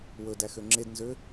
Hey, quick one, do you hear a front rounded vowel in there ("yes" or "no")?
yes